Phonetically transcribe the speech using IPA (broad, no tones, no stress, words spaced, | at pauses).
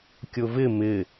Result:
kʲʊvɪ mɪ